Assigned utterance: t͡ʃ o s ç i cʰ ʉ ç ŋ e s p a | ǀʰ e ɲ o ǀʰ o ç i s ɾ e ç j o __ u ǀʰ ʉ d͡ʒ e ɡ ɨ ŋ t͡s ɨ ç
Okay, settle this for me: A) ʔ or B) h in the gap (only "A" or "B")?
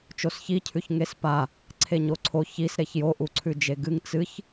A